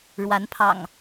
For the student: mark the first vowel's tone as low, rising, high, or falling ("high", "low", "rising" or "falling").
rising